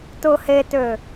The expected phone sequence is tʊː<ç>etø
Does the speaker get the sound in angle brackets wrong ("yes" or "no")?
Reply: yes